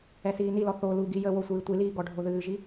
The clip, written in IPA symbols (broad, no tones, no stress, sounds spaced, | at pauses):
ɛ s iː n i l ɔ θ o l u ɡ i j ə w o sʷ ɨː tʷ i l iː ɡ ɔ ɖʱ o ð ɨː ʒ i